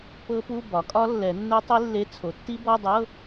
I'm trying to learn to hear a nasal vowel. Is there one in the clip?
no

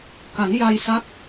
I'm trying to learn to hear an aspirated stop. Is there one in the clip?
no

